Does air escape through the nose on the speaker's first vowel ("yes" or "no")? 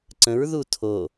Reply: yes